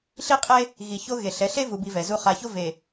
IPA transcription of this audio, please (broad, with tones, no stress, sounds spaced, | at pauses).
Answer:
ɬ i˦ qʼ e˦ | ɣ i˨ ç o˦ ɣ e˨ ɬ ɛ˨˦ ɬ e˦ v u˨ b i˨ v ɛ˨ z u˦ χ a˨ ç o˦ v e˨